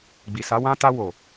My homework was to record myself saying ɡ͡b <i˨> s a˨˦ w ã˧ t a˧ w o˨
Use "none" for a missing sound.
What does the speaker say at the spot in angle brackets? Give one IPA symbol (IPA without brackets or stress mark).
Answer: i˨